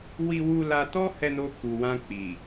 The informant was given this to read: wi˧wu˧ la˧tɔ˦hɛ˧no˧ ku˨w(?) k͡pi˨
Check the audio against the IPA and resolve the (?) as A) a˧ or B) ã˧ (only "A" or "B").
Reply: B